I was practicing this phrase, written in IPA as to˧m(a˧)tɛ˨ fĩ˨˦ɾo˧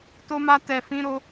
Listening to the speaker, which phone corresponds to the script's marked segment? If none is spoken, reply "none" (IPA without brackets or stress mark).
a˧